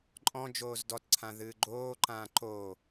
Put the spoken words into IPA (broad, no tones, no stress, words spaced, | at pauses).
ǃʼɔ̃ d͡ʒoːzdɔtǀʰã ðɨːɡ͡ǃoːǃãː ǃoː